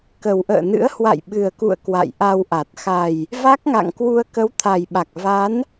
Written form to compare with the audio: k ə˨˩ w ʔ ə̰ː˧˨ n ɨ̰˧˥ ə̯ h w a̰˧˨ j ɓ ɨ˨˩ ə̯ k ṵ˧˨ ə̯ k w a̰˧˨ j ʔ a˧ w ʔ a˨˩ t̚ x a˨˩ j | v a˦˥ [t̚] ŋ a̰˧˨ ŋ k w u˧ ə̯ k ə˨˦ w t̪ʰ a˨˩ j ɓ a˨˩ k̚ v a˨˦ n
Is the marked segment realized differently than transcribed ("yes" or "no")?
yes